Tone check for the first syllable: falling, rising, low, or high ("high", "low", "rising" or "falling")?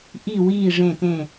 falling